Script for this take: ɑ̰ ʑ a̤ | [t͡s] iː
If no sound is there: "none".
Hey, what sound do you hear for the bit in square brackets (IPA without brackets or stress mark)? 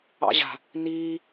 n